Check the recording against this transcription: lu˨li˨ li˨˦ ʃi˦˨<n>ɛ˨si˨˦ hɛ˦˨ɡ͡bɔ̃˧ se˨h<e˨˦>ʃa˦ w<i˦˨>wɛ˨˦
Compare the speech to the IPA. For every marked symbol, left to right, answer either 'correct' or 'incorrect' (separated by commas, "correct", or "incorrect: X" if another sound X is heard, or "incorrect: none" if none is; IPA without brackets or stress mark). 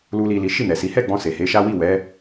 correct, correct, correct